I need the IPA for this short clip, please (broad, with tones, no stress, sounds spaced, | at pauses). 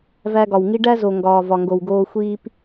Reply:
v æ˧ ɡ ɒ˨ w ŋ i˦ ɖ æ˦ z o˨ ŋ ɡ ɒː˨ v ɒ˨ ŋ ɡ o˨ w ɡ oː˧ xʷ iː˦ p